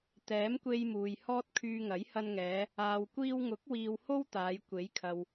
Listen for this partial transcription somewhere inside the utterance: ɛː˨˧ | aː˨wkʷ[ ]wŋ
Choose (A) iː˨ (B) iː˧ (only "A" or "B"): B